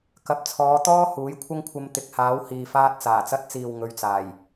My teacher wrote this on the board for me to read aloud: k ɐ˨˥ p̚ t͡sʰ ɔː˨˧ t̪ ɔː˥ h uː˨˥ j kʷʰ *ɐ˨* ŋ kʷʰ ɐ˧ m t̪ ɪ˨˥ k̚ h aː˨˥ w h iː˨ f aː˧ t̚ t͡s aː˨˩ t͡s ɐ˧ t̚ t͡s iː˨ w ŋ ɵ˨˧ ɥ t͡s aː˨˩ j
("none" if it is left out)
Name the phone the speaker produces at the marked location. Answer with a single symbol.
ɐ˥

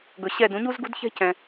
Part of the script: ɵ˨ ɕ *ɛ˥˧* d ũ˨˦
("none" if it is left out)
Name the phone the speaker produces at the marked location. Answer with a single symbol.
ɛ˥˧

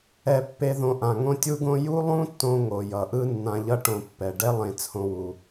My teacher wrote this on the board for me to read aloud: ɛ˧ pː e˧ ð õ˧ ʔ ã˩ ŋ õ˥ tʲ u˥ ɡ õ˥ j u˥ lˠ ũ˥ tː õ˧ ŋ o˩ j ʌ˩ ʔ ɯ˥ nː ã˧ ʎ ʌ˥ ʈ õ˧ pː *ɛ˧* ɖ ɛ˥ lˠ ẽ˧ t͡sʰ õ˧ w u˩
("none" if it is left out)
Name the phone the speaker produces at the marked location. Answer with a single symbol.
ɛ˩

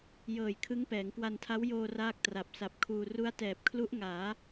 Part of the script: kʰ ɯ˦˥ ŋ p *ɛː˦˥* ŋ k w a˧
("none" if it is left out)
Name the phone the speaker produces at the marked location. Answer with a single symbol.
ɛː˩˦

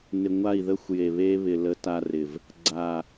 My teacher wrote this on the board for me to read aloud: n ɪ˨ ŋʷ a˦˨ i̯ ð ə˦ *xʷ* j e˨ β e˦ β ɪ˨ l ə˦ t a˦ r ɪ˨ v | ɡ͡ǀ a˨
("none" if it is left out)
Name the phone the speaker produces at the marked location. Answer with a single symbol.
xʷ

